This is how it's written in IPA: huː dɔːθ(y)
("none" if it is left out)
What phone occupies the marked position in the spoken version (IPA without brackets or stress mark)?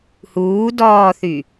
y